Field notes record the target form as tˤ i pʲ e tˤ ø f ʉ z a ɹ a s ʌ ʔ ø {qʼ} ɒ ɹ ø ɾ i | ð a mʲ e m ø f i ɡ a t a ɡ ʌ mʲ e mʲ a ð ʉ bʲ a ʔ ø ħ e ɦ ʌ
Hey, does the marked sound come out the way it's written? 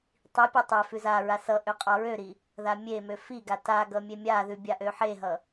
yes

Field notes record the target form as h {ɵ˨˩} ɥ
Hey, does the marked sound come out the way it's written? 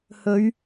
no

